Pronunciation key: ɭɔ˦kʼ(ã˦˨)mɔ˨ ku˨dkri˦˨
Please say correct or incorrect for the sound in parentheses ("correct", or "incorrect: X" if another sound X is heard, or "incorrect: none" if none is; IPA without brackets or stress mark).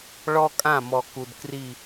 correct